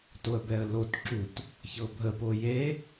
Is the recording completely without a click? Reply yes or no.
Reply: no